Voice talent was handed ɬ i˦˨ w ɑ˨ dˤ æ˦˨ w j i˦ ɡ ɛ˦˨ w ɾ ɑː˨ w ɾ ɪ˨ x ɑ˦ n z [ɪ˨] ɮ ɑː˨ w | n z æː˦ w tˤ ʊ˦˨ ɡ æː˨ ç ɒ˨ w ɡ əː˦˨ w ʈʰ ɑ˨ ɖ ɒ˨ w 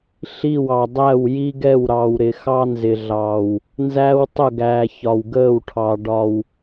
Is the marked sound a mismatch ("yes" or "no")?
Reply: no